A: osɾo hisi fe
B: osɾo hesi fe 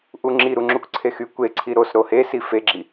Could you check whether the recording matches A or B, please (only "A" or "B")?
B